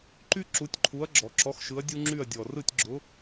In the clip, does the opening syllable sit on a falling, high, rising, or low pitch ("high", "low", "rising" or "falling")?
high